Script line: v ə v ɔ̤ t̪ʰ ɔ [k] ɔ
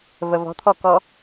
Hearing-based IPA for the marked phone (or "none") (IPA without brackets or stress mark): k